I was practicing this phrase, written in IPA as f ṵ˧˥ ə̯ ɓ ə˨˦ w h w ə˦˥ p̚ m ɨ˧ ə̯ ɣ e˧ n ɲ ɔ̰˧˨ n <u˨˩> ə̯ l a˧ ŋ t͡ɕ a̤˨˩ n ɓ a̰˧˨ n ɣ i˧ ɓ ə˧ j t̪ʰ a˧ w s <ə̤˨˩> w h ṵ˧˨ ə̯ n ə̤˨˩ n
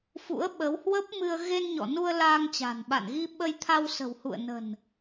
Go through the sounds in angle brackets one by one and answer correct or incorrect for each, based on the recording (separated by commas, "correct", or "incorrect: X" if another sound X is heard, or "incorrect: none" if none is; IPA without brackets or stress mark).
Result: incorrect: u˧, correct